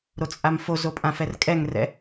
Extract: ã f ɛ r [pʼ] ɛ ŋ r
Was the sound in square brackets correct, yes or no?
no